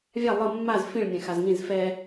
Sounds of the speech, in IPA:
vʲ a lˠ ɤ mː a z f ĩ ɭ nʲ ɛ̃ x a z ŋ ĩ z f ɛ

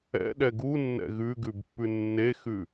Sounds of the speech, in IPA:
ɛ̰ ɗ ɛ ɡ u nː ɛ̰ ɣ ʉ ɡ ʉ b pː ʉ nː e x ʉ

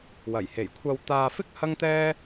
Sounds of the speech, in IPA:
w ɐ˨˩ j h e˨˩ j kʷʰ ɐ˧ w t̪ aː˧ f ɪ˥ k̚ h ɐ˥ ŋ t̪ ɛː˥

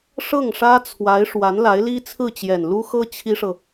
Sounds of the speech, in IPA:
ʂ ɤ˥˩ ŋ ʂ ä˥ t͡sʰ w a˧˥ ɪ̯ ʂ w a˧˥ n l a˧˥ ɪ̯ l i˥ t͡sʰ ɹ̩˥˩ t͡ɕ j ɛ˨˩ n l u˥ x ɤ˥ t͡ɕʰ i˥ ʂ ɤ˨

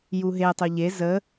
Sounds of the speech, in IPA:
j u ɦ e tˤ o ʎ e z ə

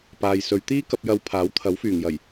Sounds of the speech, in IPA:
p aː˨ j s ɵ˨˧ ɥ t̪ iː˥ k ɐ˧ p̚ j ɐ˨˧ w pʰ aː˨˥ w t̪ʰ ɐ˨˥ w f yː˨˩ ŋ j ɐ˨˩ j

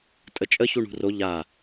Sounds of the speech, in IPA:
tʼ ə t͡ʃʼ ə ç u ɳ ṳ r o ʎ a

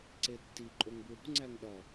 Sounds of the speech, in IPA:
ǀ e tː i ǃʼ o ŋ b ɹ ṳ ŋ͡ǀ æ ŋ ɗ ɒ

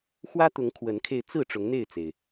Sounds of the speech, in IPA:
x w ä˦ t̪ ʊ˨˦ ŋ kʰ w ə˨˦ n kʰ e˧ ɪ̯ t͡s ɹ̩˥˨ ʈ͡ʂ ʊ˨˦ ŋ n̪ e˥˨ ɪ̯ t͡s e˩ ɪ̯

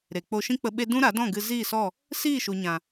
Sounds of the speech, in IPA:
ɾ e˨ k͡p o˧ ʃ ĩ˦ k͡p ə˧ ɓ e˦ d ũ˦ ɾ a˨˦ d ɔ̃˦˨ ɡ ɨ˧ z iː˦˨ s ɔ˦˨ | s iː˦˨ ʃ u˨ ɲ ã˨

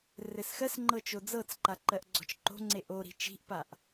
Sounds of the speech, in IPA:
r ɘ s x ɜ s ŋ͡ǃ ɤ t͡ʃ o d͡z ɤ t͡s ǃ a ǃ ɜ ʔ ɡ͡ǀ ɔ̤ t͡ʃ ǃ o̤ ŋ͡ǀ e ʔ o ɾ i̤ t͡ʃ i̤ ʔ p a ʔ

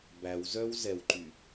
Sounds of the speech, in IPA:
b æ w z œ w z ɛ w ǃ y

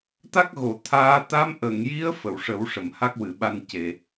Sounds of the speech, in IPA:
t̪ a˦˥ k̚ ɣ o˨˩˨ t̪ʰ aː˧˥ t̪ a˧˥ m ʔ ə˨˩˨ ŋ j i˧˥ ə̯ f ə˨˩˨ w ʂ ə˨˩˦ w ʂ ə˨˩˨ m h a˦˥ k̚ w ɨ˨˩˨ ɓ a˧ n c e˨˩˨

